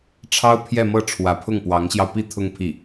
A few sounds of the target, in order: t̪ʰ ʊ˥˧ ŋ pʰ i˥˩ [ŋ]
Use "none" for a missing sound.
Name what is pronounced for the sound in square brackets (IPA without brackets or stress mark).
none